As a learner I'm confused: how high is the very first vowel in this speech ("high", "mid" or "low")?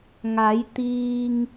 low